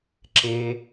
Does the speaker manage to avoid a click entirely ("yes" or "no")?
no